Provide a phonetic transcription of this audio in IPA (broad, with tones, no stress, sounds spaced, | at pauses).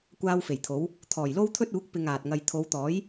kʷ aː˥ w f e˨˩ j t̪ʰ o˨˥ w | t̪ʰ ɔː˨˩ j l o˥ w t̪ʰ ɵ˥ t̚ uː˨˥ k̚ p ɪ˧ ŋ aː˨ t̚ ŋ ɐ˧ j t̪ʰ o˨˧ w t̪ ɔː˨˥ j